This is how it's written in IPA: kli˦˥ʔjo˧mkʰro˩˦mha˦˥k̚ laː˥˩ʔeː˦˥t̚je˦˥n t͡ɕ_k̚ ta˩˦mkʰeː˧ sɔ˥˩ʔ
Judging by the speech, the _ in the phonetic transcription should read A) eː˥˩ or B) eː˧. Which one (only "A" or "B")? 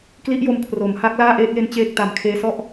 A